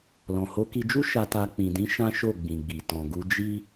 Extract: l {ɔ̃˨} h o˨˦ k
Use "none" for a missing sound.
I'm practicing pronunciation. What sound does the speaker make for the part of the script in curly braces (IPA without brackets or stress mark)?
ɔ̃˨